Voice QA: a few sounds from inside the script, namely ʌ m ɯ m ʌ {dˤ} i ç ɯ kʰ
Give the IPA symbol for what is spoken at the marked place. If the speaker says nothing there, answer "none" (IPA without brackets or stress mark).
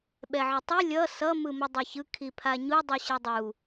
dˤ